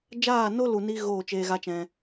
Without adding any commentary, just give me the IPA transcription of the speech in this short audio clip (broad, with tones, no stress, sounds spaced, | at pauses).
d͡ʒ aː˦˨ n o˦ l u˨ n i˧ ɣ oː˦˨ t͡ʃ eː˧ ɣ a˦ t͡ʃ ɛ̃˧